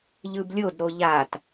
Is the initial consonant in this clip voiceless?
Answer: no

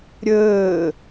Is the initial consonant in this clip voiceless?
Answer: no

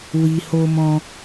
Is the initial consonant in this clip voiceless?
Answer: no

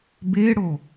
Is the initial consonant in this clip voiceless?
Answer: no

